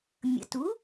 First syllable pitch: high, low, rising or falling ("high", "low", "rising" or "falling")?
rising